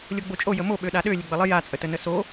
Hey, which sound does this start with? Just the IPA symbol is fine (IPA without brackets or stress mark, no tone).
lʲ